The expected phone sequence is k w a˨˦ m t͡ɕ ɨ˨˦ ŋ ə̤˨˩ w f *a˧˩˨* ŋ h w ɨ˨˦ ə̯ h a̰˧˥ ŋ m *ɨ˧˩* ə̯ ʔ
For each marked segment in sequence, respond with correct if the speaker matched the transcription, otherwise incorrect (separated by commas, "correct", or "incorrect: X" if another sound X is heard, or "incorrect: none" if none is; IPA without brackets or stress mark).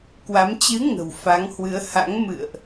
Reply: incorrect: a˨˦, incorrect: ɨ̰˧˨